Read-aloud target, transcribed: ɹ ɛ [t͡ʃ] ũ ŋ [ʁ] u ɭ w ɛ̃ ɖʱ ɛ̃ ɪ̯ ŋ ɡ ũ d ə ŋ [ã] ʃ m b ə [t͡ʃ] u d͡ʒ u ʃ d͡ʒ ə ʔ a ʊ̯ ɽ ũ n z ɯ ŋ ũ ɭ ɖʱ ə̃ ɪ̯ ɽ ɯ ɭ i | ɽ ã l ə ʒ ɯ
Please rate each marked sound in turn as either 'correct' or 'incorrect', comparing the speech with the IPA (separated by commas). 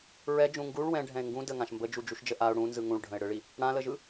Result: incorrect, incorrect, correct, incorrect